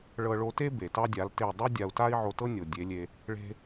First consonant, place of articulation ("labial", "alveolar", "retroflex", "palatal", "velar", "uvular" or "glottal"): retroflex